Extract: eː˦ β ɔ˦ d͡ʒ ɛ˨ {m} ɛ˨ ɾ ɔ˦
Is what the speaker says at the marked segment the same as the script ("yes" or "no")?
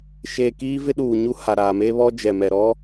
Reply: yes